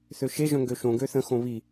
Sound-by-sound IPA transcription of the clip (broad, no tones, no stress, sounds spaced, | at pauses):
θ ø ʃ e ʒ œ̃ ŋ ɡ ø ʃ õ ɡ ø θ ə̃ x õ β i